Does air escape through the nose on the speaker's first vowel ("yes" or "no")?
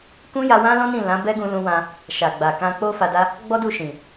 yes